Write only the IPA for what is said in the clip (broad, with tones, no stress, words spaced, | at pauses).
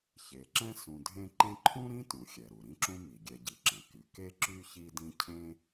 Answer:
çe˩ǁɛ̃˥ sũ˨dʱẽ˥ ǃẽ˦ǃʰũ˥ɾĩ˥tũ˩ xʲɛ˩ɾu˩ ɾĩ˦ǁũ˦ mi˩ɡʲɛ˨ɟi˩ǁɛ̃˩ ky˩ ke˦ǁy˦ çi˦dĩ˦cʰẽ˥